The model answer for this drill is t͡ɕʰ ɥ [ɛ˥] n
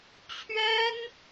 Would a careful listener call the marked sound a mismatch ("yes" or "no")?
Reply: no